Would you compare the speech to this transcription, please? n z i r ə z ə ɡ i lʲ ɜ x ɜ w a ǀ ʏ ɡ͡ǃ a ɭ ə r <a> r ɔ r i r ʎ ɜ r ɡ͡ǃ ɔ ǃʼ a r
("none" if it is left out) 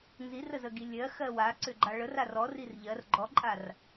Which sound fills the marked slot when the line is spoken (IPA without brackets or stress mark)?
a